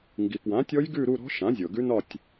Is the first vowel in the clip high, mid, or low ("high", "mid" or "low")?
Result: high